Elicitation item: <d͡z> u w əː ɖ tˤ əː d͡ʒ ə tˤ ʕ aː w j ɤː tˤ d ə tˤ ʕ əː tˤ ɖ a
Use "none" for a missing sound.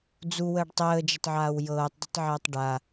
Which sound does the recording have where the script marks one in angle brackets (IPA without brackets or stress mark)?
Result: d͡z